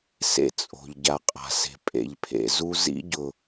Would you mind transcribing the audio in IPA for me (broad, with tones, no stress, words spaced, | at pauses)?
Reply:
sḛ˦t͡sʼo̤˨ʎ ɟa˨qʼa̤˨se̤˨ pʼḛ˨ʎpʰḛ˨zu˦ zḭ˦ɟʊ˨